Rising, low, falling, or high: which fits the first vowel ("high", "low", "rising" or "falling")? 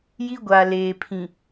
high